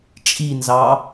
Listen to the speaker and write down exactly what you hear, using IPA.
t͡ʃʼinzɑ

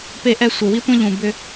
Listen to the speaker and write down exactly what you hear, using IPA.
pe˧ʔɛ˧ sʷe˨wi˦tʷẽ˦ ʎũ˨ bʏ˧

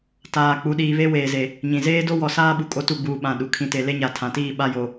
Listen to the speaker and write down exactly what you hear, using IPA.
taː˨k͡pu˨˦ ɗiː˨βe˦ weː˨ze˨ | ɲĩ˨ zeː˦do˦wɔ˨saː˦ ɓu˨kʼo˦tu˦˨ɡ͡buː˨ ɓã˨ ɗu˨ kʰĩ˨te˨ le˦ɲa˨tʰã˨tiː˦˨ ɓa˦jo˨

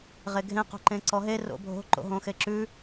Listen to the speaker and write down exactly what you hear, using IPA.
ʁeɡʱẽ qo̤ǃẽǀɔɦe ro̰bʱo̤ ǃo̰ɦõxeǁʉ

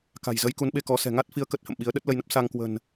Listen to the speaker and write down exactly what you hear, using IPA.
ka̤˨˩jzə˨˦j ku˨˦nɓe˧kɔ˨˦ sɛ̤˨˩ŋa˦˥t̚fi˨˦ə̯ kə˦˥t̚hə̰˧˨mɓi˨˦ə̯ ɗə˦˥t̚lə˧jnə˦˥p̚ sa˧ŋkwə̤˨˩n

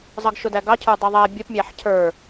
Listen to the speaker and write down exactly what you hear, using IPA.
zˤʌɡʃʊdæɡɑ cʰə˞dˤʌðˤæ bʲəpmʲæħ cʰə˞

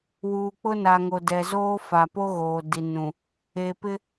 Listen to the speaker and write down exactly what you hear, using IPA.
wuː˨k͡pʊ˦na˨ŋo˨ dɛ˨zoː˦fa˨ po˦ɣoː˨ di˨nũ˨ | eː˨pɪ˦

